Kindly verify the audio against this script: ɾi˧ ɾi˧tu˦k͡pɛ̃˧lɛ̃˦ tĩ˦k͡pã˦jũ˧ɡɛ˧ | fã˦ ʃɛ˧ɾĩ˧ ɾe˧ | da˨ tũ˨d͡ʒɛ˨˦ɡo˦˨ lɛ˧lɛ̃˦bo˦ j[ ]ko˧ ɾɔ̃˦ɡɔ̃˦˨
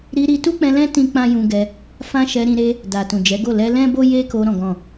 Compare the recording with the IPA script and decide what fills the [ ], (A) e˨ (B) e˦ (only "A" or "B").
B